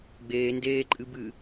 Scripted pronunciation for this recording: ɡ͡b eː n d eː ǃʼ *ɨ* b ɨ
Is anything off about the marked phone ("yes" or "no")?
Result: no